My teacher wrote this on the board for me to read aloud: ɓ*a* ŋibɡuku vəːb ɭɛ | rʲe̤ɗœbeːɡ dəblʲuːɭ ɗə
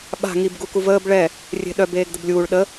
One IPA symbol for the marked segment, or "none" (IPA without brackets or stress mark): a̤